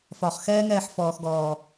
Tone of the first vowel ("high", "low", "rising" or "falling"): low